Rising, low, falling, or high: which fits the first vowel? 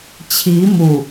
rising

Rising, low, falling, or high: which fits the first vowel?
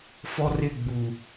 high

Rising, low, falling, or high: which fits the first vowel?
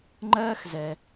high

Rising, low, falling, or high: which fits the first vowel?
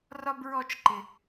high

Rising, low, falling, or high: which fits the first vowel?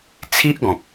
high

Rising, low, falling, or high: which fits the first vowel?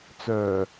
low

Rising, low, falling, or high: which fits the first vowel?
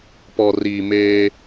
low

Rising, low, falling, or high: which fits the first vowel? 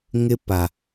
high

